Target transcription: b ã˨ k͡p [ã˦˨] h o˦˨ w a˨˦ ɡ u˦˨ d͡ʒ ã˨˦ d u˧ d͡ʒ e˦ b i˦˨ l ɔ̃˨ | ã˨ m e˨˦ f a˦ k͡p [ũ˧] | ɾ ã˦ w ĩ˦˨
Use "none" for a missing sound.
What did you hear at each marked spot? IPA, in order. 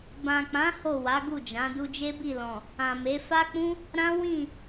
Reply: ã˨˦, ũ˦

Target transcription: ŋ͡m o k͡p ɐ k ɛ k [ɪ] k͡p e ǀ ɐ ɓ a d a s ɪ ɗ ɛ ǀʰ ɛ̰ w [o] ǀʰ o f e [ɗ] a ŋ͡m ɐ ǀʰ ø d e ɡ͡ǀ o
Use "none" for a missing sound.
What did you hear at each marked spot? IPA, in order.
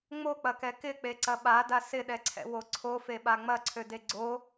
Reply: ɪ, o, ɓ

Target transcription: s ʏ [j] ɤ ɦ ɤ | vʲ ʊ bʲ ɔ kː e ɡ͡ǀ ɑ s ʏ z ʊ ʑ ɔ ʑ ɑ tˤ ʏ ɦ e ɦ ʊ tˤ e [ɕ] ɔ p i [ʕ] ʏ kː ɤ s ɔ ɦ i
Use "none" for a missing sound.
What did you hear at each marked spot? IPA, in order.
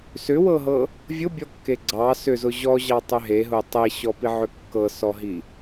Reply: w, ɕ, ʕ

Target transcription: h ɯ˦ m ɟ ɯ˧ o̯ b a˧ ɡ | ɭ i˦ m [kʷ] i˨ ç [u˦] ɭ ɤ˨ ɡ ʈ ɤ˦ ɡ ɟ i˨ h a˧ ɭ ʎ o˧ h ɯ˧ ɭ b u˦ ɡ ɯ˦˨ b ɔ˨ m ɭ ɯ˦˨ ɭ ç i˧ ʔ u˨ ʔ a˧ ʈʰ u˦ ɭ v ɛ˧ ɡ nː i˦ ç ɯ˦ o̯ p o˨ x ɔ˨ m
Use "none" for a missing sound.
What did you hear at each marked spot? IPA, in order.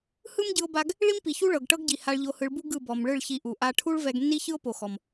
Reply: p, u˦

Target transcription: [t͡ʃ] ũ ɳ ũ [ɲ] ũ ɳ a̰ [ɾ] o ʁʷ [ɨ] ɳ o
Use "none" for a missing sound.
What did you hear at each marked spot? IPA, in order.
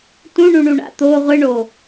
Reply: t, ɳ, t̪, ɨ

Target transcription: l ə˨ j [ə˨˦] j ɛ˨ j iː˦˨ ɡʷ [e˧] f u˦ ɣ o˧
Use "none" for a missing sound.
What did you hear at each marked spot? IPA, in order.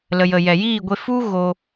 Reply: ə˨, e˧

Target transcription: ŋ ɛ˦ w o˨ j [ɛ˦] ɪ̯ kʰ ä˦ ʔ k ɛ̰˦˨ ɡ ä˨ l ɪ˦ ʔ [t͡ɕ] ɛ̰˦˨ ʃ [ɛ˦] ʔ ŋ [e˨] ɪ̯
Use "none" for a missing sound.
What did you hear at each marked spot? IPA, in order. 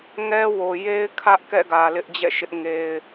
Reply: e˦, d͡ʑ, ɪ˦, e˦

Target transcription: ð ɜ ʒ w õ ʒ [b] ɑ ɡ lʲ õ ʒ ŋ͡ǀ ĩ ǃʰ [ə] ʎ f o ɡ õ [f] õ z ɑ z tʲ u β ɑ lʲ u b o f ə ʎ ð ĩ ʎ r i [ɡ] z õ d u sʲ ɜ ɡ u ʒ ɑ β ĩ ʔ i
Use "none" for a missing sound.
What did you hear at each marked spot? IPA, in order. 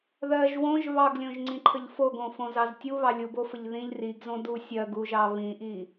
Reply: β, ə, f, ɡ

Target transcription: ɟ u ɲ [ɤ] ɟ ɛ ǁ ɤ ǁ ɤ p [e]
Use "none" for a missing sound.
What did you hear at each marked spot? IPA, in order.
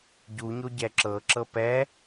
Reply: o, ɛ

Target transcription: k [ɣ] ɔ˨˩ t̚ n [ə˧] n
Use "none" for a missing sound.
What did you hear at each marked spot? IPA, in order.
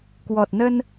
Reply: w, ə˧

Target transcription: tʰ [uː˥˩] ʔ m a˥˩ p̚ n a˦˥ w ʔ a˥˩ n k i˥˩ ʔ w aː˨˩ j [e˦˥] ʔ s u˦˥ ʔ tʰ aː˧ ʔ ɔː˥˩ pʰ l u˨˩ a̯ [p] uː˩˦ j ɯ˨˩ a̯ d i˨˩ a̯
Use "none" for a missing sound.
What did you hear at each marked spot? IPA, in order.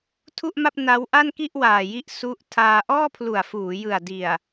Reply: u˥˩, i˦˥, f

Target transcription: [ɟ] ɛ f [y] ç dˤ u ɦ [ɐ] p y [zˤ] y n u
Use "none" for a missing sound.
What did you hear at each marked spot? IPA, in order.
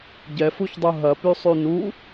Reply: ɟ, u, ɐ, sˤ

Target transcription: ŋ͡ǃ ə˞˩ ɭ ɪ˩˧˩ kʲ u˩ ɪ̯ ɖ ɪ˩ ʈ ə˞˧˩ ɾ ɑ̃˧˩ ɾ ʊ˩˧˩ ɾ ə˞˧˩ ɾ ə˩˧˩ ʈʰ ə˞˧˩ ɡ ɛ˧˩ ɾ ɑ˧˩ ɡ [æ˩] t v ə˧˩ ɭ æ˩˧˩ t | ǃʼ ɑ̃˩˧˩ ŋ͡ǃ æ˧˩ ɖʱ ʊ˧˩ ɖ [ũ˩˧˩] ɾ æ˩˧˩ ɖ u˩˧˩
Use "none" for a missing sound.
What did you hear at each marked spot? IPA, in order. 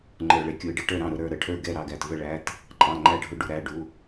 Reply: æ˩, u˩˧˩

